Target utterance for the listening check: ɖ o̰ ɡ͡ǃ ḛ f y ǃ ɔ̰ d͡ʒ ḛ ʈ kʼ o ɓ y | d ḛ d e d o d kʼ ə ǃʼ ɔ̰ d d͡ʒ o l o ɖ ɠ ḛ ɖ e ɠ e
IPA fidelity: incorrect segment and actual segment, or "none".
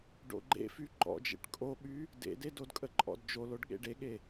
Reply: none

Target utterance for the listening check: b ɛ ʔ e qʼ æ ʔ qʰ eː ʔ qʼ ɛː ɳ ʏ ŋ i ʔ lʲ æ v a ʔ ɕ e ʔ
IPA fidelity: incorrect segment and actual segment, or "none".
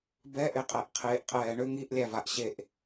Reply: none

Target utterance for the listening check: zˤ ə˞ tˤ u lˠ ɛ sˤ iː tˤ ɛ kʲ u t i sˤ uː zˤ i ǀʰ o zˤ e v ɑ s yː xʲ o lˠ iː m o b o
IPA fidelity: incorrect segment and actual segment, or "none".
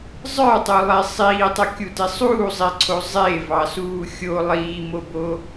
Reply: yː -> uː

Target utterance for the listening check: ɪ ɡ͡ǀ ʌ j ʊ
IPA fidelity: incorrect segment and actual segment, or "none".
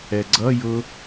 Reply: ɪ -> ɛ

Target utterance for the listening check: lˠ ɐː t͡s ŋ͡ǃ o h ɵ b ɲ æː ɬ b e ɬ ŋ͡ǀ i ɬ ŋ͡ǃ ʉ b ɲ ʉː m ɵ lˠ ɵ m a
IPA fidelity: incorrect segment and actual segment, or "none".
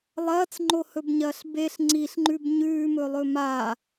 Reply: æː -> ɐː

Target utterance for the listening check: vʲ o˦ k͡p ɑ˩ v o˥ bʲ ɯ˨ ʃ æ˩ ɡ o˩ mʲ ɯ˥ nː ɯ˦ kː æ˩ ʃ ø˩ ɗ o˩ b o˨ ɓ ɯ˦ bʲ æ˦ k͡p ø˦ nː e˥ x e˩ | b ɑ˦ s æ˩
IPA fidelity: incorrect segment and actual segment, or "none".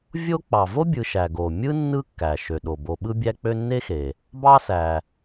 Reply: none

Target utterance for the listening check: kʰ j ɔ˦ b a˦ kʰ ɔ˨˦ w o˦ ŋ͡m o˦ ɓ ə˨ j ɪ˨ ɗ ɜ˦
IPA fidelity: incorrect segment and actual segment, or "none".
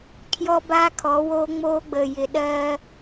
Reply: ɓ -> ɡ͡b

